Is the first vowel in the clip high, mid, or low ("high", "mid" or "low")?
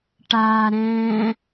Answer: low